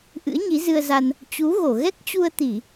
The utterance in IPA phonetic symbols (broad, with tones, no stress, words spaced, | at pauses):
ʔɨ̰˧˥ə̯ɲi˨˦zɨ˧ə̯za˧n | t͡ɕu˨˦ɣo˧˩ ɣɛ˦˥k̚t͡ɕu˧ə̯t̪i˧˩˨